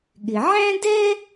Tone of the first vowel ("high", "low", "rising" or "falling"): low